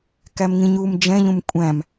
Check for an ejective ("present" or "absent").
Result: present